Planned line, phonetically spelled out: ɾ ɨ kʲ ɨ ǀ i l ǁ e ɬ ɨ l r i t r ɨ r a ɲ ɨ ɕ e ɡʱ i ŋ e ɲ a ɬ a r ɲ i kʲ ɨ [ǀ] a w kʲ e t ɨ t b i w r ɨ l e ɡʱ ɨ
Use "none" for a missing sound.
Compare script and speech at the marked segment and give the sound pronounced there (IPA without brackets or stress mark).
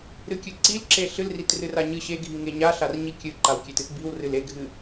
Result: ǃ